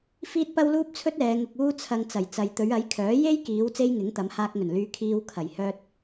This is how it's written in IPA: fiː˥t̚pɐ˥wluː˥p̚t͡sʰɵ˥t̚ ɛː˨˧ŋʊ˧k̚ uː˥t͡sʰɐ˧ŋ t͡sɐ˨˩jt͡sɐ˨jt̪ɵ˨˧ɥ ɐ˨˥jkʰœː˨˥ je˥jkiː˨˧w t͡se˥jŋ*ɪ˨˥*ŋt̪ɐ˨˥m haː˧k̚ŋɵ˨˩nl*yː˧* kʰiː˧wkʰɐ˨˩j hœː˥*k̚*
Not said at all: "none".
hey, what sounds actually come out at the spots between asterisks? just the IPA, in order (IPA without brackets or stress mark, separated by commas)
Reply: ɪ˨˥, yː˧, t̚